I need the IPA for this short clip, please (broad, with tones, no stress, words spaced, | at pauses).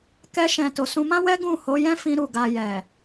kɛ˧ʃɛ̃˨ to˨sũ˧mã˦ wɛ˦ɡũ˦˨ho˨˦jɛ̃˦ fĩ˦ɾu˦˨ɡa˧ jɛ˨